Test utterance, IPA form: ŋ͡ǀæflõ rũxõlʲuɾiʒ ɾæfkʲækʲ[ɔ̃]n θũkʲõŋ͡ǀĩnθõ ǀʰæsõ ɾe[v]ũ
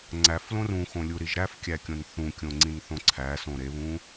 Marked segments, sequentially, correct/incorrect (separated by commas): incorrect, incorrect